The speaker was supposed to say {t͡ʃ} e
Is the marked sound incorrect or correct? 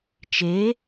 correct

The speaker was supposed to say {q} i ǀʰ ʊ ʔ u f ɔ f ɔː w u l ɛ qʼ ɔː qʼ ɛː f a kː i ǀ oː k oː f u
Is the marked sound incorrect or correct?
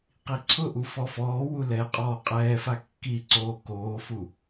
correct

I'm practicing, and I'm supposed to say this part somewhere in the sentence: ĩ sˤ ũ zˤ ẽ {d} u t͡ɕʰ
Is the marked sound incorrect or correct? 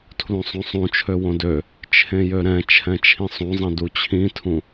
correct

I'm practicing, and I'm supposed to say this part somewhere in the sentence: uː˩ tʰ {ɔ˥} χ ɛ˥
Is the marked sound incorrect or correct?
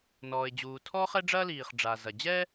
correct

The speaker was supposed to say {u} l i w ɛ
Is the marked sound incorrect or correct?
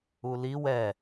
correct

